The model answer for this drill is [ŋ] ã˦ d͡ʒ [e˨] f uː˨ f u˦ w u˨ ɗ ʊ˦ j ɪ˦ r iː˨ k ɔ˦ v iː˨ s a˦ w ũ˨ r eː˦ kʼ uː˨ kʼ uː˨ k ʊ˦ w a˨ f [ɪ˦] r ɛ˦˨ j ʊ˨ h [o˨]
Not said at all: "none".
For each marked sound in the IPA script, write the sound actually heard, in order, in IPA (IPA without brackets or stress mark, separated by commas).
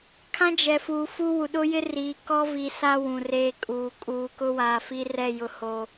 kʰ, ɛ˨, i˦, o˨